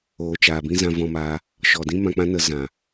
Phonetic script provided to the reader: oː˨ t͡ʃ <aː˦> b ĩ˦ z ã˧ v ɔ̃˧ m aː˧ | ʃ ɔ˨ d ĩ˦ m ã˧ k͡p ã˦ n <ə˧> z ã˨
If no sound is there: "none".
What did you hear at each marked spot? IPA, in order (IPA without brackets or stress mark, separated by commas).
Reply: aː˨, ə˧